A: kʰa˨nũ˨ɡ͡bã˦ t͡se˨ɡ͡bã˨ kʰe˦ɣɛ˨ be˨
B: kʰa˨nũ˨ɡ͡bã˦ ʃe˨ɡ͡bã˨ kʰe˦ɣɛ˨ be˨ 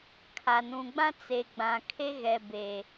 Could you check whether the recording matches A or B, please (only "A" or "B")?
A